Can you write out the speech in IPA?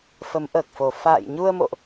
f ə˨˦ m ʔ əː˨˩ k̚ f o˨˩ f a̰ː˧˨ j ɲ u˧ ə̯ m o̰˧˨ ʔ

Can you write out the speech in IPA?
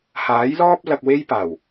h aː˨˥ j l ɔː˥ p̚ l ɐ˧ k̚ w e˥ j p aː˨˩ w

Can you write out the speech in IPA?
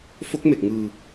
f o˦˥ k̚ m e˨˩ k̚ ŋ ɯː˧

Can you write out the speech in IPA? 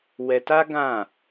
w ɛ˧ t a˦ ɡ ã˦˨

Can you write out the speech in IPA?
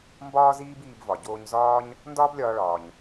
m b ɒː˥ z iː˥ b iː˧ b v ɒ˩ ɟ oː˧ ɲ z ɒː˥ ɲ | n d ɒː˥ b lʲ ɒː˧ ɭ ɒː˩ ɲ

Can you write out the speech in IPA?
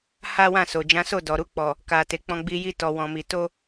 h a˦ w ã˦˨ s o˨ d͡ʒ ã˨˦ s o˦˨ d ɔ˨ ɾ u˧ k͡p ɔ˨ | k a˨ t e˨ k͡p ɔ̃˧ ɡ͡b i˧ j i˧ t ɔ˨ w ɔ̃˨ m i˨ t o˧

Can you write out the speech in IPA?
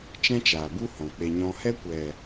t͡ʃ ɛ̃˦ t͡ʃ aː˨ b u˦ h ɔ̃˨ k͡p e˧ ɲ ɔ̃˦ h ɛ˦ kʷ ɛ˨

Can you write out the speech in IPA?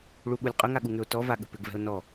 ɭ u ɠ u lʲ qʼ ʏ ŋ a ɠ u ŋ ʏ o̯ t ɔ v a ɠ ə̤ p ʏ ɡ v ɛ̤ o̯ n ɔ

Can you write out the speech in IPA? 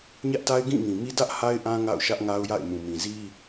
ɲ ä˦ ʔ t a˦ ɪ̯ ɡ ĩ˦˨ ŋ ĩ˨ m i˦ d ä˦ ʔ h a˦ ɪ̯ ʔ ã˦ ŋ a̰˦˨ ʊ̯ ʃ ä˦ ʔ ŋ a˦ ʊ̯ j a̰˦˨ ɪ̯ m ũ˨ m ĩ˨ z i˦

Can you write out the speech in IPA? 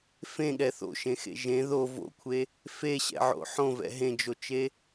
f ẽ ɠ ɛ θ o̰ ʃ ẽ x ḛ ʒ ẽ ð o v o̰ kʷʰ e | f e ɕ ɛ̰ ʕ o̰ ħ õ v ɛ̰ ɦ ẽ d͡ʒ o t͡ʃ e

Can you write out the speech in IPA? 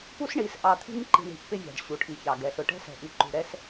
p u˦ s ɳ i˨ s ʔ ɑ˨ t̪ʰ i̤˦ ŋ ǃ i̤˨ ɳ i̤˨ ʔ p ɪ˦ vʲ ɑ̤˨ ɖ ɕ u˨ ʈʰ i˨ ç ɑ˨ ɡ ɛ˨ ɬ ʊ˨ ʈ ɛ̤˦ s ɛ̤˨ ʔ i˨ ǃ ṳ˨ ɾ ɛ˦ s

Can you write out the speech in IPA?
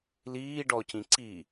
l iː ɖ ɔ c ĩ ǀ i

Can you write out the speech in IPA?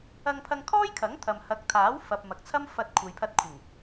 ɐ˧ ŋ pʰ ɐ˧ ŋ kʰ ɔː˥ j kʰ ɐ˨˥ ŋ t̪ʰ ɐ˨ m h ɐ˨˥ k̚ t̪ʰ aː˨˥ w f ɐ˨ p̚ m ɐ˨ k̚ t͡sʰ ɐ˥ m f ɐ˧ t̚ kʷʰ ɐ˨ j pʰ ɐ˧ t̚ kʷʰ ɪ˨˩ ŋ

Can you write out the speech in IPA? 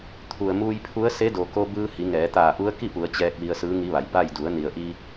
t̪ʰ u˩ ə̯ m uː˧ j pʰ u˧˥ ə̯ s e˧˥ d o˩ k o˧ b ɯː˧ h i˩˧ ŋ ɛː˩˧ t̪ aː˧˩ ʔ u˧˥ ə̯ k i˥˨ p u˩˧ ə̯ t͡ɕ ɛː˧ k̚ ʋ i˧ ə̯ s ɯː˧˥ ŋ i˧˥ ʋ a˩˧ j b a˥˨ j d u˩˧ ə̯ n i˩ ə̯ ʔ i˧

